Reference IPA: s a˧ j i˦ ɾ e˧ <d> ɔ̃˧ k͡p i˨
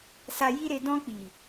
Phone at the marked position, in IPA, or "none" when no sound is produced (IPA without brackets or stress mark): d